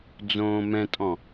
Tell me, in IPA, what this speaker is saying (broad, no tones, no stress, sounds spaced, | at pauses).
d͡z õː m ɛ̃ tʼ ɔ̃